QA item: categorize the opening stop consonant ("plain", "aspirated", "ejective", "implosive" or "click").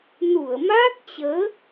plain